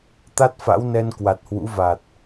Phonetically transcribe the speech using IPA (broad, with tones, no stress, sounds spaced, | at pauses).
t̪ a˦˥ t̚ f a̰˧˥ w n ɛ˧ n k w a˨˩ t̚ h w ṵ˧˥ v a˨˩ t̚